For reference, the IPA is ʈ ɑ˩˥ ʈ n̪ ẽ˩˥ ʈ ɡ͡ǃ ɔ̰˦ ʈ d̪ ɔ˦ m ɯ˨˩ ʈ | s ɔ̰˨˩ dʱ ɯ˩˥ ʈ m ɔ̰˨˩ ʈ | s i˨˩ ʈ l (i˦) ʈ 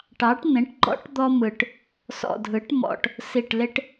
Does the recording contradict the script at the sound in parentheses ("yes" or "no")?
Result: yes